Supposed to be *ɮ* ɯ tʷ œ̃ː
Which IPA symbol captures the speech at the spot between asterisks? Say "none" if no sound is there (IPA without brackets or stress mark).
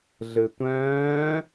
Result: ɮ